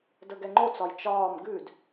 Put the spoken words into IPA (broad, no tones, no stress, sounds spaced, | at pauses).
d ə ɡ ɛ ŋ͡ǃ o t͡s ɒ j t͡ʃ ɒː m ɡ ʉ d